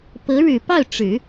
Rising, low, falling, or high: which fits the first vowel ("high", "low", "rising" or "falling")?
rising